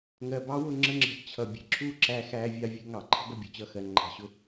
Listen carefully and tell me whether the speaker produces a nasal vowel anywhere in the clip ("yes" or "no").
no